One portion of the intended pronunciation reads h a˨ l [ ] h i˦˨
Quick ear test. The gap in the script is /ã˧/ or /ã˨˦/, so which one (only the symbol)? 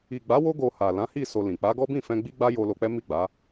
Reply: ã˨˦